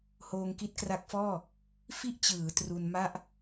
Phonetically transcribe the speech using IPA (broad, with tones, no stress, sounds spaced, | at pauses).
h oː˧ ŋ k i˦˥ t̚ k r a˦˥ k̚ f ɔː˥˩ | f i˥˩ ʔ t͡ɕ ɯː˩˦ t r u˧ n m a˥˩ ʔ